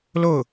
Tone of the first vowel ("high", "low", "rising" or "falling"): falling